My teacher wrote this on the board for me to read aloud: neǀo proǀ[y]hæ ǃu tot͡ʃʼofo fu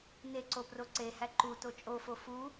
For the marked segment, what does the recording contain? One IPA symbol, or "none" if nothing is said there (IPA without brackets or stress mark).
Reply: e